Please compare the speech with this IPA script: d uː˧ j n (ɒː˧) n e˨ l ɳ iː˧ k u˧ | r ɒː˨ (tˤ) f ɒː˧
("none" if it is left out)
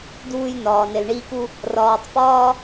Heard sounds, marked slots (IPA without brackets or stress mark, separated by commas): ɒː˨, tˤ